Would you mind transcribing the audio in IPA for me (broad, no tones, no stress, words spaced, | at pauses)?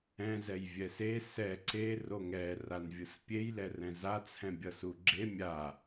ɛ̃ zɛjvʲɛse sɛ ǀe roŋɛ ranvʲɯspʲej lɛrɛ̃za t͡sʰɛ̃bʲʌsuɡ͡ǁe mʲa